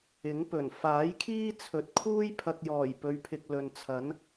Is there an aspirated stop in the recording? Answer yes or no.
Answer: yes